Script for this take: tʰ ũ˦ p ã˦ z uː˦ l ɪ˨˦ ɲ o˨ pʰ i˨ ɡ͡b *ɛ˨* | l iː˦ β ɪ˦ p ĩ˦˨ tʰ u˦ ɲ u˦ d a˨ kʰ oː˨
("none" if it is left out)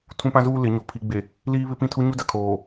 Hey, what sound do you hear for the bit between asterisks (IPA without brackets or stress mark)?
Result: e˨